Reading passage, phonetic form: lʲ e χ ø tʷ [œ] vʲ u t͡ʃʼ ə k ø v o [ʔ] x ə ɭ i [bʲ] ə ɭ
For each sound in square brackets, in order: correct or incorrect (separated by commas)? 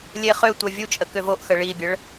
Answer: correct, correct, correct